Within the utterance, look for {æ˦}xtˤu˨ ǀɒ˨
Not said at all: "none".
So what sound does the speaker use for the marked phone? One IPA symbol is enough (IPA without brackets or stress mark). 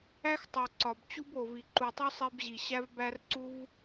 æ˦